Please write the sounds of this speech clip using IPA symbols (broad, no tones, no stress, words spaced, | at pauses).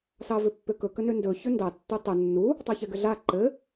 sɑvʏpːʏkɵ kənʏndɵ çɵndɑ tːutˤɘ nːu | tˤɑçɛɡɘɮa ǃɘ